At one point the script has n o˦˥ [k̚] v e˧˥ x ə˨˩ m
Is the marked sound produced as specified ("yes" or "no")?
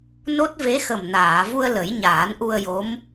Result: no